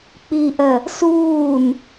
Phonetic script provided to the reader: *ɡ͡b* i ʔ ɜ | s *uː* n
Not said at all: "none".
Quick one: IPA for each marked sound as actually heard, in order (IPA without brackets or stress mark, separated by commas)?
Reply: k͡p, uː